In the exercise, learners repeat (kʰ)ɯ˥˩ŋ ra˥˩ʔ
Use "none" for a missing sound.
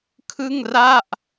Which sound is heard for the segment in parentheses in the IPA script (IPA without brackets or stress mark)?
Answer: kʰ